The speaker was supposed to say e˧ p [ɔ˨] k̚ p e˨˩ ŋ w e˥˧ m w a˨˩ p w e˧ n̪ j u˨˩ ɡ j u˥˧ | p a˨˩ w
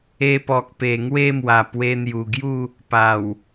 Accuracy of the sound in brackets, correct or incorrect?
correct